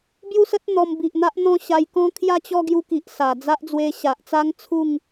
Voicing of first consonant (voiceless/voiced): voiced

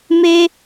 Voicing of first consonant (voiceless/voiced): voiced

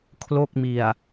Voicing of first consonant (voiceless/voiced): voiceless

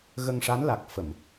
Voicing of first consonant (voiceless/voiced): voiced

